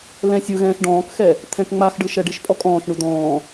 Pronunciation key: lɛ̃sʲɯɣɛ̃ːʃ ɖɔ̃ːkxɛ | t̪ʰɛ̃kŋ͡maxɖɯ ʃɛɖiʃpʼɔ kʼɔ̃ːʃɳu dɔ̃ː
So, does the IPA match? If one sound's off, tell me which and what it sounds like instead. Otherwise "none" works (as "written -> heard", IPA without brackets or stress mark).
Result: none